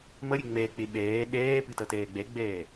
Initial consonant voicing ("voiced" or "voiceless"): voiced